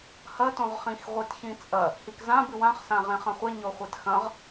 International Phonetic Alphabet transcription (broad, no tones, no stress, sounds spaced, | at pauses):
h ɐ t õ ʁ χ ĩ x ʁʷ i t ç ĩ t͡sʼ ɐ | h i k z ã b ɨ w ã χ s ã ʁ ẽ χ ɐ̃ χʷ e ɲ o χʷ e t x ɐ̃ ʁ